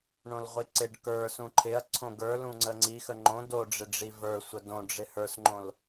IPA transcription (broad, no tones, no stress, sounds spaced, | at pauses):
ɳ õ l ʁʷ i ǀ ɪ ɖ k ə˞ s ũ ǃʰ ɪ ɐ̯ ǀʰ õ ɡ ə˞ l ũ ŋ͡ǀ ə ŋ͡ǀ i x ə ŋ͡ǃ õ d o ɖ͡ʐ ɪ ɖ͡ʐ i v ə˞ sʷ ə d õ ɖ͡ʐ ɪ h ə˞ s ŋ͡ǃ õ l